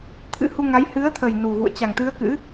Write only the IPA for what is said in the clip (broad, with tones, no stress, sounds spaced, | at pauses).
t̪ʰ ɨ̰˧˥ h u˧ ŋ a˨˦ j h ɨ˨˦ ə̯ t̪ʰ ə˨˩ j n u˨˩ ɣ ṵ˧˨ ə̯ t͡ɕ a˨˩ ŋ t̪ ɨ˨˦ ə̯ k ɨ̰˧˥